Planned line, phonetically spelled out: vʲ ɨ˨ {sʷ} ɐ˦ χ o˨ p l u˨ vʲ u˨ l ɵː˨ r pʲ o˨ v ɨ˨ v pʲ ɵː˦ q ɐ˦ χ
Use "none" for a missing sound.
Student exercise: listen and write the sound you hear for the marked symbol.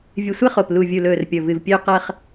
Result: sʷ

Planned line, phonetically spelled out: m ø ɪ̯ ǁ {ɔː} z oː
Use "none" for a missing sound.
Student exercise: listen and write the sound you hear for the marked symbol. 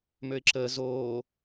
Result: əː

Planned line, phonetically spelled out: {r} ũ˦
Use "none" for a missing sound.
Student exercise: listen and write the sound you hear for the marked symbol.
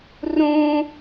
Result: r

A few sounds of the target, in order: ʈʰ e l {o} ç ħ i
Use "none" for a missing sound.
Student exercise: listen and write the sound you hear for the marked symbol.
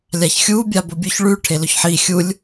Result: ɵ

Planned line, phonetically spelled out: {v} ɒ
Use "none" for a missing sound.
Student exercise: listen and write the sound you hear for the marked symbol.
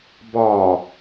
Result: b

